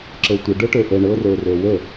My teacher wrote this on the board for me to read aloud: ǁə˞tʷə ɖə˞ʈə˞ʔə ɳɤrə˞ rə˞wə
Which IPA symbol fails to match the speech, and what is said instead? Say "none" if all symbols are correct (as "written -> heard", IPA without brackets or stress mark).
none